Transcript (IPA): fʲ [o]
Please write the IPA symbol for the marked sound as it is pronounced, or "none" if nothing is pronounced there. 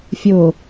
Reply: o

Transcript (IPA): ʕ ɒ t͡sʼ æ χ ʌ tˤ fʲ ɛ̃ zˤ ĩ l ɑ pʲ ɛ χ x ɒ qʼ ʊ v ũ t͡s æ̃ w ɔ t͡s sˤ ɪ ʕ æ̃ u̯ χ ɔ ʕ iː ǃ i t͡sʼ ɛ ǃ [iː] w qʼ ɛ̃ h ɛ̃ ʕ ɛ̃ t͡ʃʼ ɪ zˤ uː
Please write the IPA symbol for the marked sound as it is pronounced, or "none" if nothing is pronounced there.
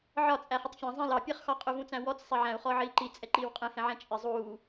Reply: iː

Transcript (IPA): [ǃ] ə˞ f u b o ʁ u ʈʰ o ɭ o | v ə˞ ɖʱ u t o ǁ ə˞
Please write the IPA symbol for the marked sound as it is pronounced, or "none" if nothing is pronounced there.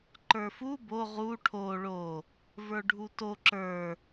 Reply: ǃ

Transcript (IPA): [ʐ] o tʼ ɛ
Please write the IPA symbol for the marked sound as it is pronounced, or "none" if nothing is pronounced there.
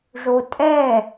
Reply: ʐ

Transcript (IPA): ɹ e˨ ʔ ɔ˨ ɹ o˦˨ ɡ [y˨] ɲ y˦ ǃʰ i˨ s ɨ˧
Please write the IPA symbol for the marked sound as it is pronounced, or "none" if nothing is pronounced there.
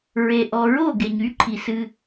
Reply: e˨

